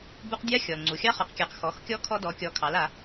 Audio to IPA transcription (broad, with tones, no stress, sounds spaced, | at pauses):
b u˧ q dʲ a˧˥ xʲ ɔ˩ l ŋ͡ǀ u˩ xʲ ɑ˧ χ ɔ˩ q kʲ a˩ q x ɔ˩˧ x kʲ ɔ˧˥ kʰ ɔ˧ d ɔ˩˧ kʲ ɔ˩˧ kʰ ɑ˩˧ l a˩˧